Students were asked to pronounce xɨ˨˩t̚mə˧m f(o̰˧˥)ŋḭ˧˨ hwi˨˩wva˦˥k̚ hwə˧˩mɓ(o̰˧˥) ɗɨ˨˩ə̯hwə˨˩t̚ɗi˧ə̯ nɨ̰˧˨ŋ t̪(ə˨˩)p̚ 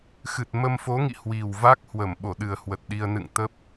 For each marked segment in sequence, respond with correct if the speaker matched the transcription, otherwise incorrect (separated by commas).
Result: incorrect, incorrect, incorrect